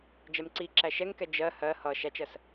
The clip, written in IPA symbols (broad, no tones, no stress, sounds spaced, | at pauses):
d͡ʒ ɛ m ǀ i ǁ æ ʃ ɛ ŋ k ɛ d͡ʒ ɜ h ɜ h ʌ ʃ æ t͡ʃ ɜ s